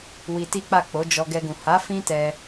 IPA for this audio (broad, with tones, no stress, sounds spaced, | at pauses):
w i˧ t i˦ k͡p a˦˨ k͡p o˨˦ d͡ʒ ɔ˧ ɡ ɛ˧ ɡ ũ˨ h a˨˦ f ĩ˦ t ɛ˧